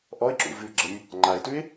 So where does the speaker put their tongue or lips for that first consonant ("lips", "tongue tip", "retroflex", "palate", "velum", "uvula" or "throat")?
throat